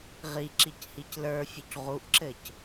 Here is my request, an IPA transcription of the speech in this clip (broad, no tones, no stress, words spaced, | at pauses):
ʁiǁic hiclə˞fʲuc ʁuʔǁɘc